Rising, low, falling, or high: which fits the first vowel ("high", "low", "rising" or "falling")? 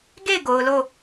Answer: falling